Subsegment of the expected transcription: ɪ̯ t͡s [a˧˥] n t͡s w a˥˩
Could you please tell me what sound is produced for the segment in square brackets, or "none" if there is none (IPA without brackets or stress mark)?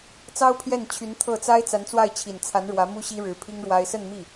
a˧˥